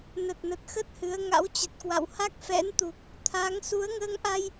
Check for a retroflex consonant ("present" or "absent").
absent